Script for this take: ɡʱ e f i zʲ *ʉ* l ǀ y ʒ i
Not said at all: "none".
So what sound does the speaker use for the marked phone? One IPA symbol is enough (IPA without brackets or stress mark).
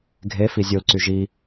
u